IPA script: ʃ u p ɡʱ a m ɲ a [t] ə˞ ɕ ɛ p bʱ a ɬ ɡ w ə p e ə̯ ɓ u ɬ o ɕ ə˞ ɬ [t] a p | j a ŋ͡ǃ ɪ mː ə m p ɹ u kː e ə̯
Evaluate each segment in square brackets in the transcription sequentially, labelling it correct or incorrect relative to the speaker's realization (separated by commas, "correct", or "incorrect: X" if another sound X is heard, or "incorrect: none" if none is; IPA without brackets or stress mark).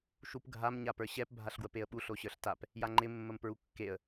incorrect: p, correct